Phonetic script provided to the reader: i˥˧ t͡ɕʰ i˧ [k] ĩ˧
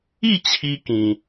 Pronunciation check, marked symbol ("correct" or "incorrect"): correct